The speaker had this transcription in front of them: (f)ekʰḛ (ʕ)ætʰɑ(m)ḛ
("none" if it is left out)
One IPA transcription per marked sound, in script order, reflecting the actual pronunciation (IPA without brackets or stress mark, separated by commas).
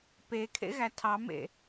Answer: p, ɣ, m